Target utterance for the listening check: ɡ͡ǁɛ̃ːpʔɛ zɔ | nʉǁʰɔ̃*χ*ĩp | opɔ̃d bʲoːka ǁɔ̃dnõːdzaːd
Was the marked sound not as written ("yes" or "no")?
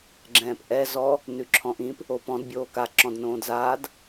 yes